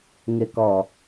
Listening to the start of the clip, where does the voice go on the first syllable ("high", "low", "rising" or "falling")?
low